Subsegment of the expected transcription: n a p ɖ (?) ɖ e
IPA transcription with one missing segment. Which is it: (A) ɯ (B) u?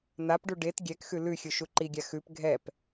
B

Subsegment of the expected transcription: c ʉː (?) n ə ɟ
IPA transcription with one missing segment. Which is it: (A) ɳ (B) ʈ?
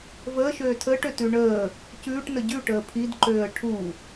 B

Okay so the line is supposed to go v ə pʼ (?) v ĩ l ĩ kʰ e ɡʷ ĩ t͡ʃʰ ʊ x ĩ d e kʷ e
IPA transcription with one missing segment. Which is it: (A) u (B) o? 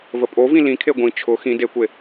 B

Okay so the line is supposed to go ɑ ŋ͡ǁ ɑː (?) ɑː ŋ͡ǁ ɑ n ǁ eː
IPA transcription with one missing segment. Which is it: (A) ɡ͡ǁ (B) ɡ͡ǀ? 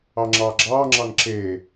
A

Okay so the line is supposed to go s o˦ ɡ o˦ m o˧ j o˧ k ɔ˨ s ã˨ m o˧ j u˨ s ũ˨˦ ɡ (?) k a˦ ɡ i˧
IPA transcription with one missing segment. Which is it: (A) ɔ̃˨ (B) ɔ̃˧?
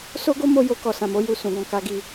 B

